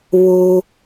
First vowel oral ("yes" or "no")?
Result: yes